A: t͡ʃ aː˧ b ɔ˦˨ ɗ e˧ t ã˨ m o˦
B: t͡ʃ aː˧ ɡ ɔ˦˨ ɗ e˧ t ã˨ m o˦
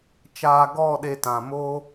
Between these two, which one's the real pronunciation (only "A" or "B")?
B